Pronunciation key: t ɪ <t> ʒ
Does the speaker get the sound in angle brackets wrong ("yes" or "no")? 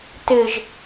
yes